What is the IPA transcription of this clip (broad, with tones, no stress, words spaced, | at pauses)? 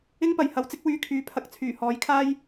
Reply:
ɪ˥ŋpɐ˨jhɐ˨˧wt͡sɪ˥k̚ wyː˧kʰyː˨˥pʰɐ˨k̚t͡sʰyː˨˩ hɔː˨˥jkʰaː˥j